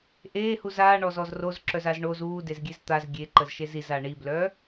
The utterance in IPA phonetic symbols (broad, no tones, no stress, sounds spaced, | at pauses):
ʔ eː h u z aː ɳ ɔ z ɔ z r o z ǁ œ z a z ɳ o z uː d e z ɡʲ e z t̪ a z ɡʲ e ǃ ə z ʃ e z i z a ɳ i b l œ